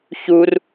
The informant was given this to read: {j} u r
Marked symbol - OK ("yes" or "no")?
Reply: no